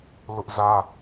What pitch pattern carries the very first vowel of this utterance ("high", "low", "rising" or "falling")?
high